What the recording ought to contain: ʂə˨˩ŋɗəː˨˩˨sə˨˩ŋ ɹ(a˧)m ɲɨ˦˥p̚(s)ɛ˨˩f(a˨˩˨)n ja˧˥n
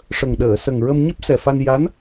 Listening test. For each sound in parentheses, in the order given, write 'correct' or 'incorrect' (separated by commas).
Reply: incorrect, correct, incorrect